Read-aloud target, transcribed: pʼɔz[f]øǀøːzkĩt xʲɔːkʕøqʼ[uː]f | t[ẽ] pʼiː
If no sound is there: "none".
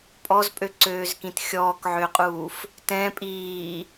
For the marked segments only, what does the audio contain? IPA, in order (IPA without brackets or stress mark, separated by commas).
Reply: pʼ, uː, ɛ̃